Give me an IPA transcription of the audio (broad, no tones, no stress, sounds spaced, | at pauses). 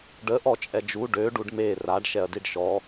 ɖ ə ʔ ɔ t͡ʃʼ ɛ d͡ʒ u ɖ ø ɖ u ɖ m e r a ɖ ʃ ɛ ɐ̯ d i ɖ ʃ ɔ